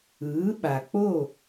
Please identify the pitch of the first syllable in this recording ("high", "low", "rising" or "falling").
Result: rising